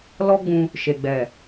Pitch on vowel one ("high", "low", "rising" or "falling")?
high